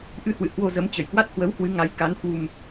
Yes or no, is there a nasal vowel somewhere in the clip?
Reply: no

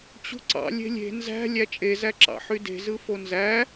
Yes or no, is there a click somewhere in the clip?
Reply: yes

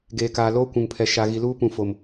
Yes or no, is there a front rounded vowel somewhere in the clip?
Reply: no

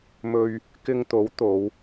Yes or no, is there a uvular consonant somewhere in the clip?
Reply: no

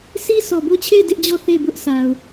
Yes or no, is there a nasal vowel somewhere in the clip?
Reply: no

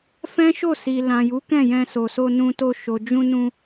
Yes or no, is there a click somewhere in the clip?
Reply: no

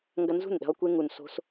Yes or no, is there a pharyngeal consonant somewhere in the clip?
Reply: no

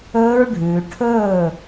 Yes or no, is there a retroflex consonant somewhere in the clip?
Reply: yes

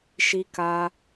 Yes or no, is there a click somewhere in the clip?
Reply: no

